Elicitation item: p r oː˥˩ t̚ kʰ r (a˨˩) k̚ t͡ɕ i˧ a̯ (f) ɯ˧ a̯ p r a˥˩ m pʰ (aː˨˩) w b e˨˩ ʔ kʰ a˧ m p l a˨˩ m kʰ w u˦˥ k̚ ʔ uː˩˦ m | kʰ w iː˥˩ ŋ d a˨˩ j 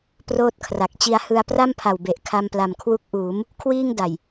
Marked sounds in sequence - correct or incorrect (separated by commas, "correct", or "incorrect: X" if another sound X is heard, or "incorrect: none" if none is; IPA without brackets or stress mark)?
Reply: correct, incorrect: h, incorrect: a˨˩